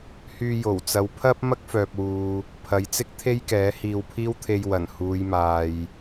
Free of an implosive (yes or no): yes